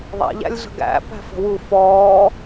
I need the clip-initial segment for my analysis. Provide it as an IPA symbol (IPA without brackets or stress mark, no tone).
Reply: ðˤ